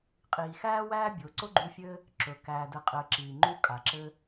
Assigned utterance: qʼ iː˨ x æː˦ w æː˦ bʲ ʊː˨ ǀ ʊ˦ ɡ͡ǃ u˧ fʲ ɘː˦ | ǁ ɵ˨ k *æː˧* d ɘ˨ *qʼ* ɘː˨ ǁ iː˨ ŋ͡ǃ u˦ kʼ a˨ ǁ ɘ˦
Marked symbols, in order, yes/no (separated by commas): no, yes